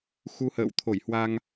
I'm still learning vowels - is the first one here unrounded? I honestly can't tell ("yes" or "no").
no